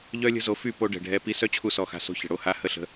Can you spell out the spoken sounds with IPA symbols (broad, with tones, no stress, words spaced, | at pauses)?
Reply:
ʎœ˦lʲə̤˦zo˧ fy˦˨ po˧ ɖɛ̤˨ɖʱɛ˧ pi˧sœ˦ t͡ɕʰu˦sɔ˧xa̤˧so̤˦ çə̤˨ɽo˧ha˧ hə˦˨ɬə̤˧